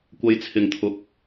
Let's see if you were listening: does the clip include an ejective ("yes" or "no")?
no